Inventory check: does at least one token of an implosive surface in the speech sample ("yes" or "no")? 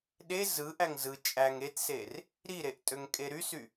yes